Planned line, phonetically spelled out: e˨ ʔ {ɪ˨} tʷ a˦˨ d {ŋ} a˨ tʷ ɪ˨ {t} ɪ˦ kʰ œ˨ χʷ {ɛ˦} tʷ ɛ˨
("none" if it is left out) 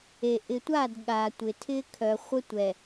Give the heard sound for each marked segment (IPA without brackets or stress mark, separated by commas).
ɪ˨, ɠ, tʰ, ə˦